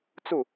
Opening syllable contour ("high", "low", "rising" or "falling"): falling